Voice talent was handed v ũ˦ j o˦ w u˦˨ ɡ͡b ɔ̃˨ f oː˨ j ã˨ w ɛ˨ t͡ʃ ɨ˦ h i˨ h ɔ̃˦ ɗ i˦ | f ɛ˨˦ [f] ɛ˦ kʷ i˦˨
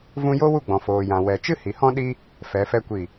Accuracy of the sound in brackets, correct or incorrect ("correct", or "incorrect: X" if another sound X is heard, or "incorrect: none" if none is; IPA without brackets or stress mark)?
correct